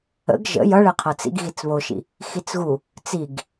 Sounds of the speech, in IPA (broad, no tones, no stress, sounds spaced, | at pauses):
ə̰ ɡ ʒ ə̰ j ʌ ɭ ɛ qʰ ʌ t͡s ḭ ɡ ɣ i t͡s β o ʃ ḭ | x i t͡s ɣ u | t͡s i ɡ